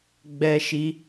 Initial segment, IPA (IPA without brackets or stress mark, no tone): ɡ͡b